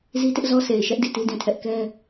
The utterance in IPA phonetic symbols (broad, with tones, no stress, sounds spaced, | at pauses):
z i˦ t ɪ˦ ʔ z ɔ˦ s e˨ ɪ̯ ʃ ɛ˦ ʔ d i˦˨ t i˦ d ĩ˨ tʰ ɛ˦ ʔ k ɛ˦